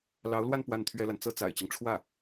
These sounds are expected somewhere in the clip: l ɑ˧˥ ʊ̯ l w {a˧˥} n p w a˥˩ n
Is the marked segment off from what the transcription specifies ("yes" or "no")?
yes